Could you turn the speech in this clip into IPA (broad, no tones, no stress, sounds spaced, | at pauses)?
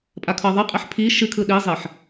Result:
pʼ a kʰ ɤ ðˤ ɨ qʼ e ħ pʰ i ʃ ɨ kʰ ɯ ɗ i zˤ e ħ